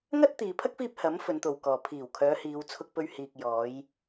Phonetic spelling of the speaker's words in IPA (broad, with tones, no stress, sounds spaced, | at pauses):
ŋ ɐ˥ t̚ t̪ iː˨ pʰ ɐ˥ k̚ f iː˧ p̚ h ɐ˨˥ m f ɵ˨˧ n t̪ o˨ w k ɔː˨ pʰ iː˨˩ w kʰ œː˨˧ h iː˨˧ w t͡sʰ ʊ˧ k̚ p ɵ˧ ɥ h iː˨ k̚ j ɔː˨˧ j